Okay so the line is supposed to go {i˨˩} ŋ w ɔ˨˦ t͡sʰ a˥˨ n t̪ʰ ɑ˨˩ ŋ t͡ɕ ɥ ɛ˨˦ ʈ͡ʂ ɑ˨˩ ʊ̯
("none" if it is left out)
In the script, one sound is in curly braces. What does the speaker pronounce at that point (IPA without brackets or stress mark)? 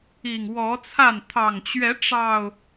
i˨˩